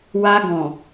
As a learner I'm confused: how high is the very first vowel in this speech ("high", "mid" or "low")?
low